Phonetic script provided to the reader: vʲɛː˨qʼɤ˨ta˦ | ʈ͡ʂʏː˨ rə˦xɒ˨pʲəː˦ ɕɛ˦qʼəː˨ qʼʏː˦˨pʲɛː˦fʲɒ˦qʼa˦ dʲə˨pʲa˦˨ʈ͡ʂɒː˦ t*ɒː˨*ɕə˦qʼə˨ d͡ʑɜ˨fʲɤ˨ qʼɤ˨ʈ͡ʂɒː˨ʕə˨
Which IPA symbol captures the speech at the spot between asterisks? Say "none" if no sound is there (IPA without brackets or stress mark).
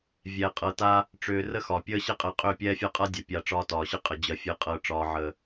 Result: ɒː˨